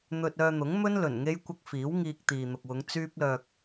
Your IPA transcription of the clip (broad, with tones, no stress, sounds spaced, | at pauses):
n̪ ɵ˧ t̚ œː˧ n̪ ʊ˨˥ ŋ m ɵ˥ n l ɵ˨˩ n ŋ e˥ j kʷ ɐ˥ k̚ f iː˨˥ w ŋ iː˧ k̚ t̪ iː˨ n̪ ʊ˨ k̚ w ʊ˨˧ ŋ t͡s yː˥ p̚ l œː˧ k̚